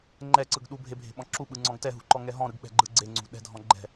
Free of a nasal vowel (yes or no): no